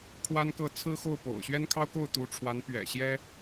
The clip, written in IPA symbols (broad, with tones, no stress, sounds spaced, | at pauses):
kʰ w a˥ n k ɤ˥˩ t͡sʰ ɹ̩˥ x o˥˩ ʊ̯ p o̰˨˩ ʊ̯ ɕ ɥ ɛ˥ n kʰ ɑ˥ ʊ̯ k o˥˩ ʊ̯ t̪ u˧˥ ʈ͡ʂʰ w a˧˥ n p ɥ ɛ̰˨˩ ɕ j ɛ˥